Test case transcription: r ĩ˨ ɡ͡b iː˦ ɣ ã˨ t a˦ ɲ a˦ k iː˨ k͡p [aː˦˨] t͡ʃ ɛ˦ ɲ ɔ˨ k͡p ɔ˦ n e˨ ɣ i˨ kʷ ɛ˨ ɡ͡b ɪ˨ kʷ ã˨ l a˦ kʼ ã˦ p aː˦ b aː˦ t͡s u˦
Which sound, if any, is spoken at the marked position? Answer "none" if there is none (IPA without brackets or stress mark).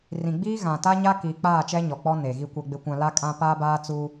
aː˦˨